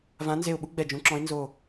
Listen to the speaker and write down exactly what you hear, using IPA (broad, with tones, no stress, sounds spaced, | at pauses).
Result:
v ã˨˥ n z e˧˩ ʊ̯ ɓ u˥ ɡ͡b ɛ˧˩ d͡ʒ ũ˨˥ ǁ ɔ̃˨˥ ɪ̯ n z o˧˩